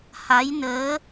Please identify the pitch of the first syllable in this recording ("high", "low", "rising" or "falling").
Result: rising